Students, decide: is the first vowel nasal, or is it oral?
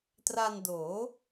oral